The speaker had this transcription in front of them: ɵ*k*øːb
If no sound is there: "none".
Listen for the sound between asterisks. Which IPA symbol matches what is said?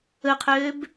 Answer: qʰ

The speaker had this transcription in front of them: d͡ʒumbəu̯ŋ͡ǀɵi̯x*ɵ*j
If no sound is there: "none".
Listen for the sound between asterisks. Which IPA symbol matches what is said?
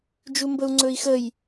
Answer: ə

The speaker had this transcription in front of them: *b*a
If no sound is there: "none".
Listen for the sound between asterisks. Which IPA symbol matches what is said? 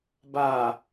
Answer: b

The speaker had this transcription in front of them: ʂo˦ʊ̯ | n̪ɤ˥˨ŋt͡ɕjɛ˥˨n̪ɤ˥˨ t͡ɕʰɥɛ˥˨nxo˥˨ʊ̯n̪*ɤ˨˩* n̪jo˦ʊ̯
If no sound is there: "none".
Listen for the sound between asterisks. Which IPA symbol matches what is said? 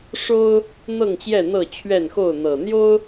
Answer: ɤ˨˩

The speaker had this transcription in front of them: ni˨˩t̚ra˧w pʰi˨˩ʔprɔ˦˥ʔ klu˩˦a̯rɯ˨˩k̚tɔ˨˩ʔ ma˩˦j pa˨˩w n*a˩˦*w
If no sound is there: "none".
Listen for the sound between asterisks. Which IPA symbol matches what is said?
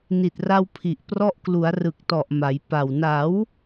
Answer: a˩˦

